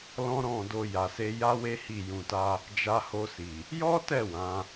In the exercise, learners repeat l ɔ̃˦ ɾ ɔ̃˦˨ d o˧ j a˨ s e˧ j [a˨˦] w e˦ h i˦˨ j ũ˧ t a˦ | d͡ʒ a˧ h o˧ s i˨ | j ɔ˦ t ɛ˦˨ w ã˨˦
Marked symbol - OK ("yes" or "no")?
no